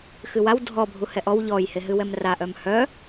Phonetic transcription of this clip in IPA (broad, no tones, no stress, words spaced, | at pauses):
xɨwaw dʱɔ bʱuhɛʔɔw ʎɔj heɦɨwɛmra ʔœmhœ